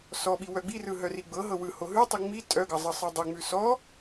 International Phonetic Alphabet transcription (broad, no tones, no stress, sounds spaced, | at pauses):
s ɔ ɓ i w œ ɡ͡b i r ɯ ɦ œ r i ɡ͡b ɤ ɦ ɤ w ɯ h o ɦ ʉ tˤ i ŋ͡m i tʼ œ ɡ ɤ zˤ ɤ sˤ ɯ dˤ œ ŋ͡m ʉ s ɔ